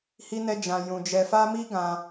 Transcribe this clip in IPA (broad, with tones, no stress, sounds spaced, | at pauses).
h i˦ n ɛ˦ d͡ʒ ã˧ j ũ˧ d͡ʒ ɛ˧ f a˦ m i˦ ɡ ã˧